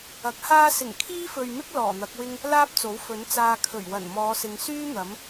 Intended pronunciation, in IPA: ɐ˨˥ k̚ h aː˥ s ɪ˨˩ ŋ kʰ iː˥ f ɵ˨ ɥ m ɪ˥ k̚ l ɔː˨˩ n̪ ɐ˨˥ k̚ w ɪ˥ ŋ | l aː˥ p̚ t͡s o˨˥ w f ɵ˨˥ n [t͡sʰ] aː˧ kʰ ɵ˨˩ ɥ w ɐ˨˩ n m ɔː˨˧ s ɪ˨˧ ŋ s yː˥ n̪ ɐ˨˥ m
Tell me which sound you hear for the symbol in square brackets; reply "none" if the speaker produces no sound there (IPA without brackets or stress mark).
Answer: t͡s